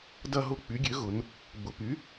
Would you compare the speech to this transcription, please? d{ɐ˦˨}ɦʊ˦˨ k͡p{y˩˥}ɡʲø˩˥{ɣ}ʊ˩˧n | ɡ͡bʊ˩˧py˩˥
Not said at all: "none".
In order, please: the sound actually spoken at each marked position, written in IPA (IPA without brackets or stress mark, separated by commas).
ɐ˦˨, y˩˥, ɣ